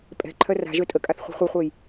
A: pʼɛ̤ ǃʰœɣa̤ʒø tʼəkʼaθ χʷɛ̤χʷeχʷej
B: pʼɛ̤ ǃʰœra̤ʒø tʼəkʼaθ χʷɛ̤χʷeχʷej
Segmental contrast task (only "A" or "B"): B